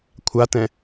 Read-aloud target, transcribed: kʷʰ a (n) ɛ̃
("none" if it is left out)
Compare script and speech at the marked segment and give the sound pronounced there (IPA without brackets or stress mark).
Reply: t